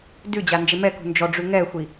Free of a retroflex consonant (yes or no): no